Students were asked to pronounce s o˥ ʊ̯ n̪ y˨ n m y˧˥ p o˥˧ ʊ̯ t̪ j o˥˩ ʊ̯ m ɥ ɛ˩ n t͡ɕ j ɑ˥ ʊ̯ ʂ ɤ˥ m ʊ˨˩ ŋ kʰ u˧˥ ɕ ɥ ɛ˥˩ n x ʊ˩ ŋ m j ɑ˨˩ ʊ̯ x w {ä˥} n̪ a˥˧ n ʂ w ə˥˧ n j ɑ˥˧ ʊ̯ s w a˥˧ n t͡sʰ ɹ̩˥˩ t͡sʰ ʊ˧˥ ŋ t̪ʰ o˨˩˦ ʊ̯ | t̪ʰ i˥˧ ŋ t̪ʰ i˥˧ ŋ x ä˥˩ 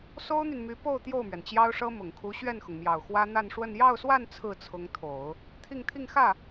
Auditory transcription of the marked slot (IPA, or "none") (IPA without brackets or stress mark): ä˥